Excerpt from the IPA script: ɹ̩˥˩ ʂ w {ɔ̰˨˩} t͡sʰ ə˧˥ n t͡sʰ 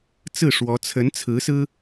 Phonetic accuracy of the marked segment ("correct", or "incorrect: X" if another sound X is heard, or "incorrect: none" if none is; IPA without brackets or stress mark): incorrect: ɔ˧˥